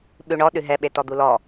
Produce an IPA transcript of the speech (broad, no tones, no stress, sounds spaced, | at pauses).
ɓ ʉ ɳ ɔ ɗ ʉ ɦ ɛ ɓ e t ɔ d̪ u l ɔ